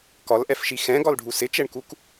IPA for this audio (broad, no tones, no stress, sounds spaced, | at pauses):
k ɒ l ʔ ɛ f ʃ i x ɛ̃ ɡ ɒ l ɖʱ u s ɪ t͡ʃ ɛ ɳ k u k